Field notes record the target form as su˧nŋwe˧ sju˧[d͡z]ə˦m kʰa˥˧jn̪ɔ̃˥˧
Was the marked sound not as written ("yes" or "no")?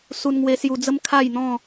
no